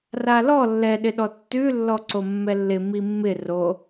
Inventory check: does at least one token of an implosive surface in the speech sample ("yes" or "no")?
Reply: yes